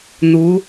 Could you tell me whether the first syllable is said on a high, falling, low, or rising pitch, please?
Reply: rising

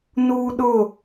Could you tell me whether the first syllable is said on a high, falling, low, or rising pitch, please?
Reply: high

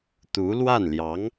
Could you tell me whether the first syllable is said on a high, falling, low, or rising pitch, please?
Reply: rising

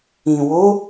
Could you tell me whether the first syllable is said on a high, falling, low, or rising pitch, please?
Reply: low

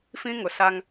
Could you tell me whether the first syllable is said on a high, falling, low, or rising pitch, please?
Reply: high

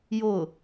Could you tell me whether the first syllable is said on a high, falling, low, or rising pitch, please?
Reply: falling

